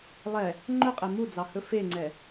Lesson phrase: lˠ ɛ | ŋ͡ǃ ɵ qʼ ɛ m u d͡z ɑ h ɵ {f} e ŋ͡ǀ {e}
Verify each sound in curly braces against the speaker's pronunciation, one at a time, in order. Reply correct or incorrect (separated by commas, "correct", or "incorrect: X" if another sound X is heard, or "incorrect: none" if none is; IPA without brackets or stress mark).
correct, incorrect: ɛ